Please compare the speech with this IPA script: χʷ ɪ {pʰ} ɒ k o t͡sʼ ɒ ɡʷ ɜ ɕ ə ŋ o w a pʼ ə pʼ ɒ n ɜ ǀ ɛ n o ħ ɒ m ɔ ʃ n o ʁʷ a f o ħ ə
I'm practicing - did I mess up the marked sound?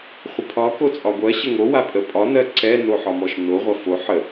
no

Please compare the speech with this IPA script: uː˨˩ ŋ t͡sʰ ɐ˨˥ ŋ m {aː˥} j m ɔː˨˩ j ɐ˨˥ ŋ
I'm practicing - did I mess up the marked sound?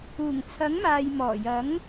yes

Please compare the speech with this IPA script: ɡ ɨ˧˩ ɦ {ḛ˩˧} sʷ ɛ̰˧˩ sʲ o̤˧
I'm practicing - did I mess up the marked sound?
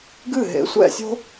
no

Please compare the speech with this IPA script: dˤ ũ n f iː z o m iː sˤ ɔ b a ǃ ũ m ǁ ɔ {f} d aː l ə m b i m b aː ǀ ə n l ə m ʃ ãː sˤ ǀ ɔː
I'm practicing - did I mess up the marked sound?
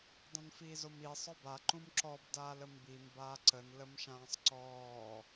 yes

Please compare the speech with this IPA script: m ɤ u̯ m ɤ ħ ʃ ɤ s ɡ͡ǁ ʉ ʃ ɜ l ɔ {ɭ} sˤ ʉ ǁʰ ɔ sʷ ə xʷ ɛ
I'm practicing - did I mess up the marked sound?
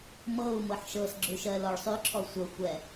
no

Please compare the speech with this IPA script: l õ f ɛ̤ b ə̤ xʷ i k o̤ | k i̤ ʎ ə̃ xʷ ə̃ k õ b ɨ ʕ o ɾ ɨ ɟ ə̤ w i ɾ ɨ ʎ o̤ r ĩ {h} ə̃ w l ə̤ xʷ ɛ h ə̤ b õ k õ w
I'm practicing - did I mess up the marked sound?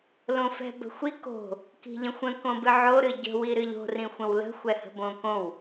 yes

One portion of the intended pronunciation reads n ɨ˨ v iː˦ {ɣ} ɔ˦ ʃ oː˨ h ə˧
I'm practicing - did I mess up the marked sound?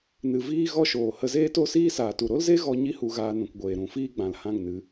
no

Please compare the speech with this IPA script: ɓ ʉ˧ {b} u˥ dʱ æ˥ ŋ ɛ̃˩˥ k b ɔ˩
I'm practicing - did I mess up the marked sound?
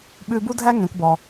no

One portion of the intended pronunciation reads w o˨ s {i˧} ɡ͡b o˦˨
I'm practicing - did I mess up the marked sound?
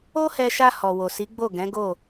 yes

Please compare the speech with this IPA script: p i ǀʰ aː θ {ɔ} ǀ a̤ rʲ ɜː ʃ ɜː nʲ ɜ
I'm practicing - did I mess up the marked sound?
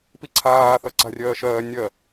yes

